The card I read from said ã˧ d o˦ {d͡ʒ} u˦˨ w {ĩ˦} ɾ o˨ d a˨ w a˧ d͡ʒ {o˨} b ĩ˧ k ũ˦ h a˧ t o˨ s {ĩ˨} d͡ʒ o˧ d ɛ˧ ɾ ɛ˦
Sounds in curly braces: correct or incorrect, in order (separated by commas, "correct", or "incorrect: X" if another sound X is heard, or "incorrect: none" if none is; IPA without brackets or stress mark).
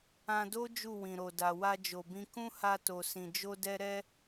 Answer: correct, incorrect: ĩ˨, correct, correct